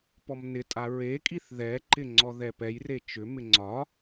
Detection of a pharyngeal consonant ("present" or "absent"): absent